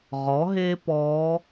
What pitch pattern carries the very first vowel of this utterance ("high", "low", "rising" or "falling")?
rising